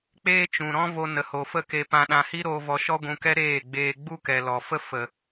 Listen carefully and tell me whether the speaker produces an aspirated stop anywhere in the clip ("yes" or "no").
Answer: no